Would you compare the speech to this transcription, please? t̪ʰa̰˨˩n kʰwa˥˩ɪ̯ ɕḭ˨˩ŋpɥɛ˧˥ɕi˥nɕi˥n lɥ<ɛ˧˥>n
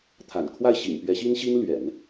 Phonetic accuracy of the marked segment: incorrect: ɛ̰˨˩˦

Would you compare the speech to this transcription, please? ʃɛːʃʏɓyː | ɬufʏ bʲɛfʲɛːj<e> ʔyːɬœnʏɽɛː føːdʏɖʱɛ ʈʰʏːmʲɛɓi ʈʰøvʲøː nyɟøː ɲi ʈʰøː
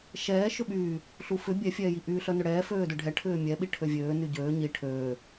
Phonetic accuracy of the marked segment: incorrect: i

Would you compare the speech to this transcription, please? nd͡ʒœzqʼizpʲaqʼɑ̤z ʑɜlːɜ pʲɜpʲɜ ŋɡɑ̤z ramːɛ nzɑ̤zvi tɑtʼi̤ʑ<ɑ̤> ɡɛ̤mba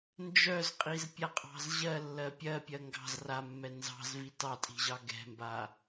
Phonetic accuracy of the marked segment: incorrect: ɑ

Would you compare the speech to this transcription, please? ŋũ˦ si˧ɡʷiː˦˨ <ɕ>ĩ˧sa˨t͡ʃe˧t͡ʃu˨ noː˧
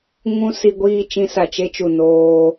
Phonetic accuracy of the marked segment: incorrect: t͡ʃ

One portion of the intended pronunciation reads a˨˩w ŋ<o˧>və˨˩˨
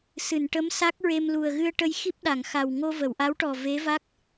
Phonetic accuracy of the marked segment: correct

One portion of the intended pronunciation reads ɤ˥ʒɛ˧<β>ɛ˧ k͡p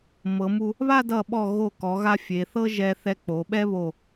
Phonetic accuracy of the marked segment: incorrect: θ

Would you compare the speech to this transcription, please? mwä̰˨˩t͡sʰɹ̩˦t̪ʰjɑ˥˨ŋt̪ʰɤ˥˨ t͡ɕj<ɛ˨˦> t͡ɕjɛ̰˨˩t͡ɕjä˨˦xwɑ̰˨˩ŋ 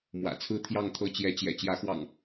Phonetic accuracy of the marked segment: correct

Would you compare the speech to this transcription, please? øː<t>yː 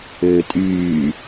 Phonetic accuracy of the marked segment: incorrect: tʼ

